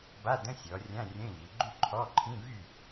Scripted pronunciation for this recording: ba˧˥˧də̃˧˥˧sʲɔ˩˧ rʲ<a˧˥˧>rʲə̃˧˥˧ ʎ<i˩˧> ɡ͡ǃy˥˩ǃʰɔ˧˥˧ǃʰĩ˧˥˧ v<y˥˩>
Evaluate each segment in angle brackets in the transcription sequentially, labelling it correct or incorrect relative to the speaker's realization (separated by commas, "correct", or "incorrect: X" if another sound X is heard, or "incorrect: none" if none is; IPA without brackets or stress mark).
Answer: incorrect: ã˧˥˧, correct, correct